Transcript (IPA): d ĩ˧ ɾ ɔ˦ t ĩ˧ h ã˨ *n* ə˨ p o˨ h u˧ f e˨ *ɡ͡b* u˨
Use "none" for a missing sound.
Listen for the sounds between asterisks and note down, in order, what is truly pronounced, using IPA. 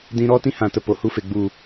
t, ɡ͡b

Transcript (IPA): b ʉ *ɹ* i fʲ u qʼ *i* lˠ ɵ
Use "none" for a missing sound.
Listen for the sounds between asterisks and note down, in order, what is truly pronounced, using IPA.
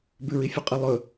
ɹ, ɨ

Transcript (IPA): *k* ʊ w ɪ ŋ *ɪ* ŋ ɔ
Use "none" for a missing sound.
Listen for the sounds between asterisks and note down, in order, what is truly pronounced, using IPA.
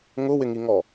ŋ, i

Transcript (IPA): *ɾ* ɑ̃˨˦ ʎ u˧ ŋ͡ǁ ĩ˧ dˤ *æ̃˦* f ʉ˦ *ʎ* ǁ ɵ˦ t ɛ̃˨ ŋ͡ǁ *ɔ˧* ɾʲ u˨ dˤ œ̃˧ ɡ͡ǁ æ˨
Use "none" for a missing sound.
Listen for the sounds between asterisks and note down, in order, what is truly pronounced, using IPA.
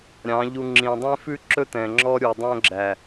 ɾʲ, ɛ̃˦, none, ɔ˧

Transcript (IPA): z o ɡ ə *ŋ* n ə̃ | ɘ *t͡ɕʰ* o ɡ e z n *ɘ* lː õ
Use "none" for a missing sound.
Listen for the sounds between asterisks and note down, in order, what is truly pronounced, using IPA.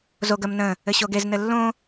m, ɕ, ɘ

